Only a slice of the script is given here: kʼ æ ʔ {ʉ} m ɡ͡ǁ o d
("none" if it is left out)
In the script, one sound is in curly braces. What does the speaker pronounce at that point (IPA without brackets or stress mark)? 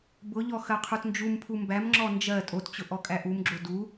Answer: u